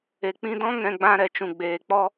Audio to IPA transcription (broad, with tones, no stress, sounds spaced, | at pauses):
e˨ k͡p ĩ˧ d ɔ̃˦ ŋ ɛ̃˧ ɡ͡b ã˧ ɾ ɛ˨ t͡ʃ ũ˨ ɡ͡b eː˨ k͡p ɔ˦